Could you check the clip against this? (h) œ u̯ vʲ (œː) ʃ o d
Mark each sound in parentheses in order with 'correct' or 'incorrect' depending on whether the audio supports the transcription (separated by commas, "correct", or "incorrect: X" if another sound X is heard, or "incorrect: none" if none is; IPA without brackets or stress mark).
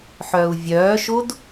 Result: incorrect: ħ, correct